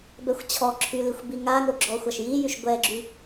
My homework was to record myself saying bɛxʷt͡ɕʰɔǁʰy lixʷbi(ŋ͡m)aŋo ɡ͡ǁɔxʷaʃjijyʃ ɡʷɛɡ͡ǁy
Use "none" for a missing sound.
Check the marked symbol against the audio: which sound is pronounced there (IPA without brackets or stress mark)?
ŋ